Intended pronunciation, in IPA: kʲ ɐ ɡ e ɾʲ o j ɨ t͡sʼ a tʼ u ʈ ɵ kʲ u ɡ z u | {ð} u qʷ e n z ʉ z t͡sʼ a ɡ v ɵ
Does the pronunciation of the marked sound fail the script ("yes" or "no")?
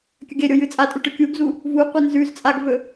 yes